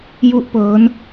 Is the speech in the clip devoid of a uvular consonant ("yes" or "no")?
yes